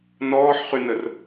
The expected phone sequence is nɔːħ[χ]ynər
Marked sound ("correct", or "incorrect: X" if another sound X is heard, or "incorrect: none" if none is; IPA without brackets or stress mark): correct